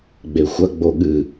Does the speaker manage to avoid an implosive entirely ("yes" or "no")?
no